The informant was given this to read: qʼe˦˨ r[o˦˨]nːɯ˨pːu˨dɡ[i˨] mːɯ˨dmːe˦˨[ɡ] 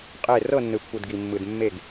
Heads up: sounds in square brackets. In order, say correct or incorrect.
incorrect, correct, correct

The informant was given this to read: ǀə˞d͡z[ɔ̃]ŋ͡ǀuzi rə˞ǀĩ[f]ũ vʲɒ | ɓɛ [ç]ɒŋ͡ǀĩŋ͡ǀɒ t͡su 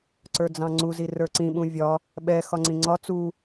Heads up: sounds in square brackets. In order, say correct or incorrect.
incorrect, incorrect, incorrect

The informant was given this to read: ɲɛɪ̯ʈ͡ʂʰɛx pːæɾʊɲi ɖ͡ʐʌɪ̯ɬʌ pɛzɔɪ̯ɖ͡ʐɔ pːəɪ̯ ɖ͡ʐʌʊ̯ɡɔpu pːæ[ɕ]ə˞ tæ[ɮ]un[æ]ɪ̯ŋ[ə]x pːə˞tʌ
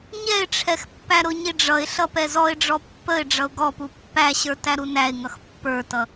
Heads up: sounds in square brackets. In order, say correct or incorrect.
correct, incorrect, correct, incorrect

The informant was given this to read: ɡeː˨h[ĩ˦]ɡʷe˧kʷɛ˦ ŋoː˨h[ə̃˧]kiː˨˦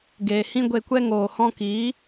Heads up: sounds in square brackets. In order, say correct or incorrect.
correct, incorrect

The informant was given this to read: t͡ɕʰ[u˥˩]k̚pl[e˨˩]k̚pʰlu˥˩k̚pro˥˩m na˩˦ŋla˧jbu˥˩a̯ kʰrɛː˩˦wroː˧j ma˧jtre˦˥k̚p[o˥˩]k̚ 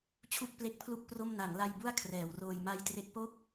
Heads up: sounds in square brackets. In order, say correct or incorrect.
correct, incorrect, correct

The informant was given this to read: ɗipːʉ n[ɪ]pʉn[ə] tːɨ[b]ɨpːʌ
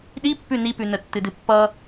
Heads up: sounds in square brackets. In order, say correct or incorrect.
incorrect, correct, incorrect

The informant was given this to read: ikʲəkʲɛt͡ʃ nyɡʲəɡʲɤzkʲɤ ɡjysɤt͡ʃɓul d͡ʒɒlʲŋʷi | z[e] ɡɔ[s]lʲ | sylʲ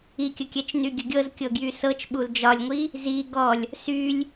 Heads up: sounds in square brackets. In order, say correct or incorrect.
incorrect, incorrect

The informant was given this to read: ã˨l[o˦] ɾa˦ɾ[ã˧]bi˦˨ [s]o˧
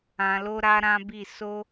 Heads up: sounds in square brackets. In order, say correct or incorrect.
incorrect, incorrect, correct

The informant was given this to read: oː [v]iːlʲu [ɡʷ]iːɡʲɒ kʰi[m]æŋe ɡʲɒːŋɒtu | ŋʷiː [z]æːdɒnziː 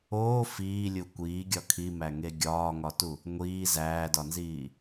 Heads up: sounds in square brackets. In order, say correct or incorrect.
incorrect, incorrect, correct, correct

